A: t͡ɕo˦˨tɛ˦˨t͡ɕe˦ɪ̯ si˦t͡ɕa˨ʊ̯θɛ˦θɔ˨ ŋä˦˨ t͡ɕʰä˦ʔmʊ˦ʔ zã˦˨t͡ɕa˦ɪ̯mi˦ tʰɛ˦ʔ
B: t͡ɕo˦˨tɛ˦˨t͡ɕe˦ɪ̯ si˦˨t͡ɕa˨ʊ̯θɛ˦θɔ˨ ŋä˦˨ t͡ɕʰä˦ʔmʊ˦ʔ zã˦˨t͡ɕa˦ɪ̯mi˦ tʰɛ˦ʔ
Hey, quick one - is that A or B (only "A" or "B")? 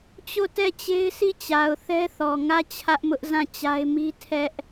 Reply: B